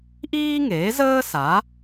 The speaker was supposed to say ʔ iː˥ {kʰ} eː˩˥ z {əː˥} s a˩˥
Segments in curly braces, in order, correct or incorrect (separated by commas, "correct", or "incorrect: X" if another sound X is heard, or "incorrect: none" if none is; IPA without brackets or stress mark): incorrect: ŋ, correct